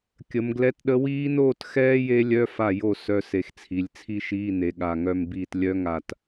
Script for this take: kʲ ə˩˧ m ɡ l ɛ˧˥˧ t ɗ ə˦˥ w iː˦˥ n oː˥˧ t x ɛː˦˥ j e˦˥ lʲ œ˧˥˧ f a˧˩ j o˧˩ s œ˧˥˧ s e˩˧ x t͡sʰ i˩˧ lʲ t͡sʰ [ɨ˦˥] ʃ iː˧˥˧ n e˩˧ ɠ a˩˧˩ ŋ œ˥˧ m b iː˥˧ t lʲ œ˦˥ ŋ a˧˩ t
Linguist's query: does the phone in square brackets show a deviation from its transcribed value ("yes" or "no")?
yes